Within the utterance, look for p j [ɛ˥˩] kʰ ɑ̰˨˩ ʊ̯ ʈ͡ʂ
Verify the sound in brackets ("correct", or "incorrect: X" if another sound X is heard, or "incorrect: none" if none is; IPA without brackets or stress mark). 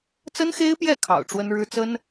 correct